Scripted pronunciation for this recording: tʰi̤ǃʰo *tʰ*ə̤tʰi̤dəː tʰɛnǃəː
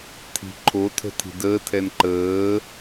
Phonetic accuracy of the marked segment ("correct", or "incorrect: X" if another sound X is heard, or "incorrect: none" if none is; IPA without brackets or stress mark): correct